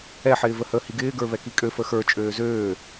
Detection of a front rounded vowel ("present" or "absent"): present